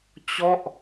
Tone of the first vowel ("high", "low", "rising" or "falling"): falling